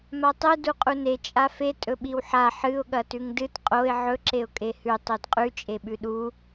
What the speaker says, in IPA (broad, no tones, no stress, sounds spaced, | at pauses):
m a tˤ ɨ d u qʼ u n e t͡ʃʼ a f e tʼ ɵ ɓ i w ħ a ħ ɨ ʊ̯ ɠ ɐ t ʉ ŋ d ɨ t qʼ o ɪ̯ ʕ ɵ ǁ e ʊ̯ kʼ e h ʉ tˤ o d qʼ ʉ t͡ʃʼ e ɓ ʉ ɗ u